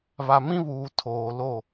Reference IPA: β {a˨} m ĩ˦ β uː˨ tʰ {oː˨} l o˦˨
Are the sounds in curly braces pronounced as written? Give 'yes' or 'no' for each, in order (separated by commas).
yes, yes